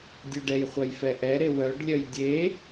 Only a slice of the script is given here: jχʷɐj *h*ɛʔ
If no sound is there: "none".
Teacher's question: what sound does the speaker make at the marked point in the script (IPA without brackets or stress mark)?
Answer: f